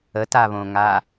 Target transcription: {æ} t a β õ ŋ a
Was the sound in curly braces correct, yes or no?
no